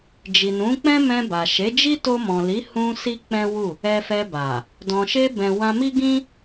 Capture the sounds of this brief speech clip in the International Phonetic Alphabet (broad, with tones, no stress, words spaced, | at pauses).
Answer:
d͡ʒi˨nũ˨˦k͡pɛ̃˦ mɛ̃˧ba˨ ʃe˨˦d͡ʒi˦ to˧mɔ̃˨li˨˦hũ˧ si˦k͡pɛ̃˦wu˦˨ | ɛ˧fɛ˧ba˨ | dɔ̃˨ʃe˧bɛ̃˨ wã˧mi˦ɡĩ˦